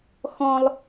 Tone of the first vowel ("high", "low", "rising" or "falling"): high